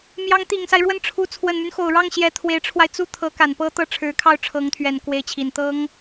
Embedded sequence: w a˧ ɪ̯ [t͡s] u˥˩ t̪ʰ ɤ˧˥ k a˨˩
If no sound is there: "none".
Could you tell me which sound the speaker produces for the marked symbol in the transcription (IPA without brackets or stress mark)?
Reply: t͡s